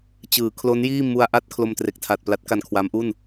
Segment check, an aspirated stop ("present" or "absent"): present